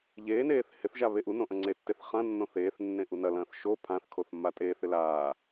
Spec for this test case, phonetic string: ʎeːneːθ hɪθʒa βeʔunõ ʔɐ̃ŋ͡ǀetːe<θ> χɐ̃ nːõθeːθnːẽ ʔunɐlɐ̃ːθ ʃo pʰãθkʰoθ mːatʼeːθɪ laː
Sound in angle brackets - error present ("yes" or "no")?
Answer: no